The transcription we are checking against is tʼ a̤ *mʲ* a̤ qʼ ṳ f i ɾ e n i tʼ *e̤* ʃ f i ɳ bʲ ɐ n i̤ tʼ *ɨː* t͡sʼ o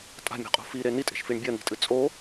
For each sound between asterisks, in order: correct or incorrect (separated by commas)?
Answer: correct, correct, incorrect